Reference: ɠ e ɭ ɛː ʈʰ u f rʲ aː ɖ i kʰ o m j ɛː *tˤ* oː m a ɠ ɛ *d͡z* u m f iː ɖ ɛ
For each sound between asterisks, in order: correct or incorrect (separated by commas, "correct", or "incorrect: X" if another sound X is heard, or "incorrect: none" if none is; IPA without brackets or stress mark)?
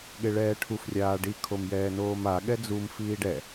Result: incorrect: n, correct